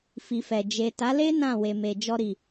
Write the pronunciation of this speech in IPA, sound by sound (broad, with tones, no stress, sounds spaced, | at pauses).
f i˨ f ɛ˨ d͡ʒ e˨ t a˨˦ l e˦ n ã˦˨ w e˨ m e˨ d͡ʒ ɔ˧ ɾ i˨